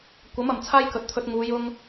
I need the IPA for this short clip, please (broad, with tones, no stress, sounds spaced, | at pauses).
kʷ ɐ˨˥ m ɐ˨˩ m t͡sʰ aː˥ j k ɵ˨˥ t̚ t̪ʰ ɵ˧ t̚ ŋ uː˨˧ j ʊ˧ ŋ